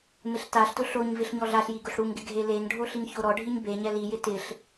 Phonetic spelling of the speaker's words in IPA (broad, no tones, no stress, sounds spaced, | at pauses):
m ɪ ɬ t a ɬ t ʊ ɬ o ɲ v ɪ ɬ ɲ ɔ ɮ a ɬ j i ɡ ʊ ɬ ɽ u ŋ ɡ ɪ ɡʱ e l e ŋ ɖʱ o ɬ i ŋ ç o ɾ ɔ ɖʱ i ɲ b e ɲ ɛ l i j ɪ t ɪ ɬ